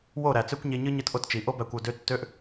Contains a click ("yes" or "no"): no